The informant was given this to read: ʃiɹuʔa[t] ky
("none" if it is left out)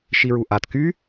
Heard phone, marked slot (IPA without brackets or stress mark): t